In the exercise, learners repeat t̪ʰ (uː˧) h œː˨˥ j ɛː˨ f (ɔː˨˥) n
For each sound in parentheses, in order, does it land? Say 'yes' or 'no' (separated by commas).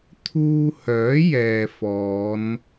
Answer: yes, no